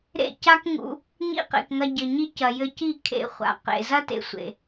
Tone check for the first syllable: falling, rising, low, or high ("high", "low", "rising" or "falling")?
falling